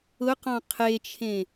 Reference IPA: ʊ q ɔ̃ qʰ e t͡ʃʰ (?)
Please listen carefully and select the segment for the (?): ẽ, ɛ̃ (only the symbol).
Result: ẽ